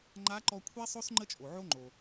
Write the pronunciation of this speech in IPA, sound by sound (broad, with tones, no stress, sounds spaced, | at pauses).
ŋ͡ǃ a˧˥ ǃ ɔ˧ kʷʰ ɛ˥ sˤ o˥ s ŋ͡ǃ ə˥ t͡ʃʼ o˩ ʕ o˥ ŋ͡ǃ o˩